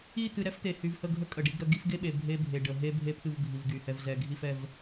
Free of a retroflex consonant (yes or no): no